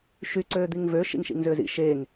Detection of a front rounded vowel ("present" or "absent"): present